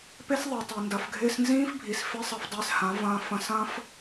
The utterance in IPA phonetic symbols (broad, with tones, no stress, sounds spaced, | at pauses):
p e˦ s ðˤ i˨ tˤ e˨ n d ɐ˨ f ɡʱ ɪː˧ s n z ĩː˦ f bʱ i˨ s f ɪ˦ sˤ ɐ˧ f dˤ ɪː˧ s h ã˨˦ v ɐ̃ː˧ f ɐ̃˧ s ɐ̃ː˦ f